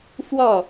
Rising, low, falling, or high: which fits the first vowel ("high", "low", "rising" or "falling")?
falling